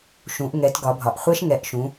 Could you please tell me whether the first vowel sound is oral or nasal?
nasal